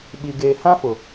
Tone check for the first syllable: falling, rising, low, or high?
low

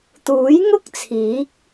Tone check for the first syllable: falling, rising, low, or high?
rising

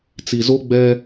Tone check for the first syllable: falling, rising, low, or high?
low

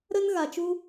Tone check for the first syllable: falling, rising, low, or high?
high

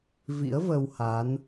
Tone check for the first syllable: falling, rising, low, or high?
rising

